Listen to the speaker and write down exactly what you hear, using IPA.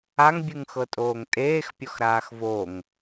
a ŋ bʲ ɯ ŋ x ɤ tʼ oː ŋ tʼ eː x pʲ ɔ x ɾ aː x v o ŋ

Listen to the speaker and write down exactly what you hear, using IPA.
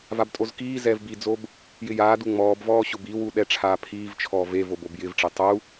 v a b tʼ o z k iː z ɛː v b i d͡z o b | j ɪ j aː d u ŋ͡m ɔː b v ɔː ɕ ʊ b i w u ɗ ɛ ʈ͡ʂʰ aː pʰ iː v t͡ʃʰ ɔː v e v o b o b j ɪ v ʈ͡ʂ e tˤ u

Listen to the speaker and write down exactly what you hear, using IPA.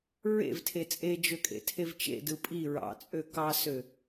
ɹ ḛ v tʰ e t͡sʼ e d͡ʒ ø kʼ ḛ tʰ e v t͡ʃ ḛ d ɯ pʼ i ɹ ɑ̰ t͡sʼ ø k ɑ s ø

